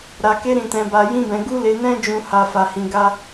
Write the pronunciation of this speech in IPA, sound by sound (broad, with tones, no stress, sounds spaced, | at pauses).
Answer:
ɾ a˧ k e˦ ɾ ĩ˧ t ɛ̃˧ b a˧ j ĩ˦ b ɛ̃˧ ɡ u˦ l e˧ n ɛ̃˦ d͡ʒ ũ˧ h a˦ f a˧ h ĩ˧ ɡ a˦